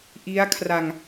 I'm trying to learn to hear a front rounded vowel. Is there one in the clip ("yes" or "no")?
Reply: no